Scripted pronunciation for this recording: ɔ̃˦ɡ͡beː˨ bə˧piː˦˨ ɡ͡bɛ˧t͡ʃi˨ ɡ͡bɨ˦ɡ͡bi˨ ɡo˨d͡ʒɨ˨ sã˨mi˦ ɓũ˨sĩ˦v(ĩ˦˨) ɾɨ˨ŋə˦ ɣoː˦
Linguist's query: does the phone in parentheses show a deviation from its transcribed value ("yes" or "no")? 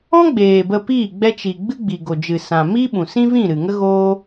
no